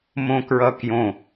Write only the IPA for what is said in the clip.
mõkɹʌkjõ

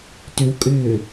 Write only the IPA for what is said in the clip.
tʏwkʼʏː

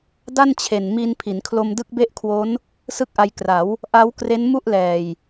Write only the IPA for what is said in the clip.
da˥˩nt͡ɕʰe˨˩n mi˧n pʰi˩˦nkʰlo˧mdɯ˦˥k̚ be˥˩ʔkʰwo˦˥n | sɯ˥˩k̚ʔa˧j kra˩˦w | ʔa˦˥wkre˦˥n mu˥˩ʔlɛː˨˩j

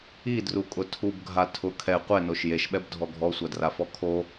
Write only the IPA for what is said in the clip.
idrukʼʊ tʰubɡʱa tʰʊ kʰɛ qʷɛnoʃ jeʃɓɛbdʱɔ ɡʱɔsʷadrafɔ kʰo

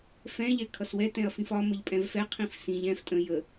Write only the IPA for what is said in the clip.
fɛ̃ʎɛ kʰʌswɛtɛ̃ɐ̯ fĩfɒ məʎpʼɛ̃vfɛ qʰĩfsĩʎ ɛ̃f tʼə̃ jə

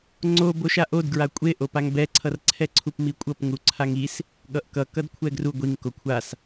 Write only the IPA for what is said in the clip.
ŋ͡ǀo boʃaʔodɡɹa kʷʼeʔopaŋ bɛǀʰʌrǀʰɛǀʰup mikʷʼʌp ŋuǀʰaŋis | ɠʌʔkʌ kʌdkʷʰɛɡru ɡʷiŋ kokʷʰas

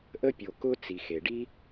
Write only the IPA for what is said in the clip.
ʔə˧pʲo˩kʊ˧ t͡si˩xe˩ɖi˥

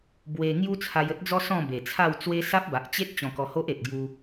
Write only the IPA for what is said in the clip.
bwe˧ ŋju˦t͡sʰa˧jə˦t̚d͡zɔ˦ sɔ̃˥˧be˨˩t͡sʰa˥˧w t͡swe˦ sa˦p̚ba˨ʔt͡ɕe˦t̚ t͡ɕɔ̃˧kɔ˧ho˦ʔe˨t̚ ɡju˧

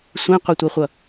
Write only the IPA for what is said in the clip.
sʷẽqʷɛtʷɛχʷʌ

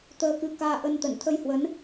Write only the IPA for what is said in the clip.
t̪əː˧kɨ˧ kaː˧ʔə˧nt̪ə˧˩n t̪ʰə˧jhwə˨˦n

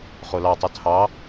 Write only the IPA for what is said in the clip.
χolɑtˤu tʰɑ

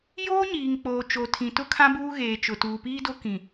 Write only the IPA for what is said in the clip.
joː˦ɲiː˨ŋk͡poː˨ t͡ʃo˨tʰĩ˨tʊ˦kʰã˦ buː˦ɣeː˨ t͡ʃʊ˨tuː˨piː˦do˦ kĩ˨

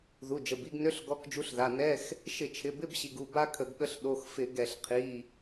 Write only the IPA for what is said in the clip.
ðu˩˧˩d͡ʒə˩˧˩bi˧˥˧ɡnø˧˥˧ɬ ɡɔ˧˥˧kd͡ʒu˧˥˧ɬða˩˧˩ nɛ˧˥˧x | ʃɪ˧˩˧t͡ʃʰɪ˩˧˩ bɪ˧˥˧bɕi˩˧˩ɡ u˩˧˩ba˥kʰə˧˩˧ɡɠə˧˥˧ɬ ɗo˩˧˩xfɪ˧˩˧ɡɛ˧˩˧ɬ qʰi˩˧˩

